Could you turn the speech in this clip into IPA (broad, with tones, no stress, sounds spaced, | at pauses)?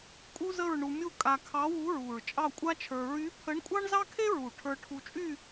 kʼ u˥ z ə˥˧ ɹ ɳ u˧ mʲ u˥˧ kʼ a˧ kʰ ɑ˧˥ w u˧˥ ɹ u˨˩ ɹ t͡ʃʼ ɑ˥˧ kʷʼ a˥ t͡ʃʰ ə˞˧ ɹ y˧˥ pʰ ə˧˥ ɳ kʷʼ ɑ˥ ɳ z ɑ˥ kʰ e˥ ɹ u˨˩ ʈʰ ə˞˧ ʈʰ u˧ t͡ʃʼ y˥˧